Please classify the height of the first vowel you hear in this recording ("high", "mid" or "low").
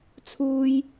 high